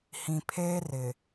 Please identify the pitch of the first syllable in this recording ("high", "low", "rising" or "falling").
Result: low